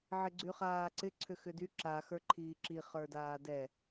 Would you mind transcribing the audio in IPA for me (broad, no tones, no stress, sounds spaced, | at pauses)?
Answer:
ʕ ɪ ɡ͡ǀ y χ aː ǀ ɪ ǀʰ ʏ x ʏ d y ǁ a x ə˞ ǃʰ iː ǁ i χ ə˞ d aː d ɛ